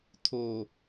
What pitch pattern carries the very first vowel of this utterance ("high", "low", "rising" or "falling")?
low